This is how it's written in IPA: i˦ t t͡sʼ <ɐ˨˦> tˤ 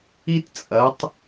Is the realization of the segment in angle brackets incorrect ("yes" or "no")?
no